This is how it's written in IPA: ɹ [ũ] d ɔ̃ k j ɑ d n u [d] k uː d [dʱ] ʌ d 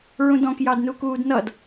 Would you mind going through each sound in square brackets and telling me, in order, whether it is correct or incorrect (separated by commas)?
correct, incorrect, incorrect